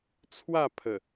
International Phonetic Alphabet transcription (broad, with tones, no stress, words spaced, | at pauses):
t͡sʰwa˥˧pʰə˨˩